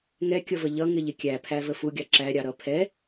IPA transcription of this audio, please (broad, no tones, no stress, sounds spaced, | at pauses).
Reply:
ŋ ɛ kʲ ʌ v ə ʎ ʌ ŋ ɪ ʎ ɪ kʲ æ pʰ æ v ə f u ɡʲ ɑ ǁ æ ɾʲ ɑ ɾ ʌ pʰ ɛ